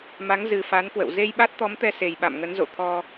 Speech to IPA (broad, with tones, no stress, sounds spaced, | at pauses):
m a˨˦ ŋ z ɨ˨˩ f a˨˦ n k w ə̰˧˨ w z e˧ j ɓ a˦˥ t̚ t̪ ɔ˨˦ m t̪ ɛ˧ s e˨˩ j ɓ a̰˧˨ m ŋ ə˨˦ n z o̰˧˨ t̪ʰ ɔ˧